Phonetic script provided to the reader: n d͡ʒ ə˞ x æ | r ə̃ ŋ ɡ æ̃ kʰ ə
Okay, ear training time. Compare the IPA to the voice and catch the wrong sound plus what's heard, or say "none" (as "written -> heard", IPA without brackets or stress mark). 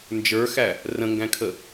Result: none